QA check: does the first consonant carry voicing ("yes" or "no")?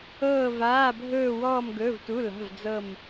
yes